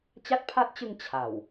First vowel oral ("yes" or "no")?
yes